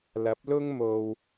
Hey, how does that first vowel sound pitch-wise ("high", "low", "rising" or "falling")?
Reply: rising